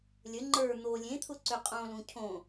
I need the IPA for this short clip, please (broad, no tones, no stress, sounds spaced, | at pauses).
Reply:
lʲ ə ŋ͡ǃ ə˞ n̪ o lʲ ẽ t̪ʰ ʊ ǀ ʏ qʼ õ l ũ cʰ õ